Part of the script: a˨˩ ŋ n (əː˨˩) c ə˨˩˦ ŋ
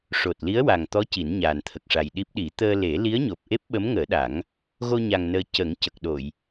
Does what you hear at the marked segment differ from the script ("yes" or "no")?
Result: yes